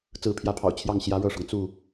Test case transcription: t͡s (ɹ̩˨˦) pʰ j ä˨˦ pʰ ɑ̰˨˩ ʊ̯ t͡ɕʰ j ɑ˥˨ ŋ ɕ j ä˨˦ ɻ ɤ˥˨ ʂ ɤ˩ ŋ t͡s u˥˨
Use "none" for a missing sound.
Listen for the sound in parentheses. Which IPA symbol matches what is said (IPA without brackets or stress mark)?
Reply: ɹ̩˨˦